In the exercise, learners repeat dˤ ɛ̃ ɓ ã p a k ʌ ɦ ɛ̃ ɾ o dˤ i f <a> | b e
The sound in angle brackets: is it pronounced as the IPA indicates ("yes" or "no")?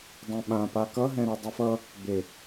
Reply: no